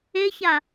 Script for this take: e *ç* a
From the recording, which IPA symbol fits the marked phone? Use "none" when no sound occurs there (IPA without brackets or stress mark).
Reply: ç